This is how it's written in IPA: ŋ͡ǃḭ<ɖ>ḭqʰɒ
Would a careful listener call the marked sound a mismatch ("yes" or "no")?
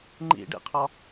no